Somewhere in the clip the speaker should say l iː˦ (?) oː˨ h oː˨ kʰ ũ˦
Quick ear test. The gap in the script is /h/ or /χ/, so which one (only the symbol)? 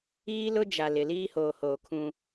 h